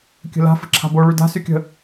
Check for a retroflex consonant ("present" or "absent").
present